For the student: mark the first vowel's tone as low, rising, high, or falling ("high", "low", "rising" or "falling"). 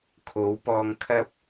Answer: rising